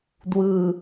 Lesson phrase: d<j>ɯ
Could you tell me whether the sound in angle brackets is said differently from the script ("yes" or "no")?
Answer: yes